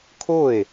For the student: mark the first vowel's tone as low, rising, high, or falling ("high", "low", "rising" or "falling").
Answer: falling